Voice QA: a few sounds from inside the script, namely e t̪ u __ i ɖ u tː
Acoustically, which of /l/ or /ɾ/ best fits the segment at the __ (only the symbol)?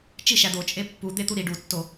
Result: ɾ